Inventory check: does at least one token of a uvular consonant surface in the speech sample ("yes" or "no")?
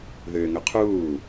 yes